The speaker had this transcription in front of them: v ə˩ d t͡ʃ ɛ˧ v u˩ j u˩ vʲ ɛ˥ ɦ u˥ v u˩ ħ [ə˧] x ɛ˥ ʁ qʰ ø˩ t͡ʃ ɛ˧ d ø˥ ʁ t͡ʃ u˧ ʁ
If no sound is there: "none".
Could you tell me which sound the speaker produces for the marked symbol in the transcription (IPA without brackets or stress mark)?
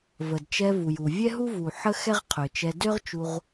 ə˥